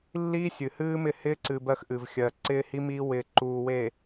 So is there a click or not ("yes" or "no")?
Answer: yes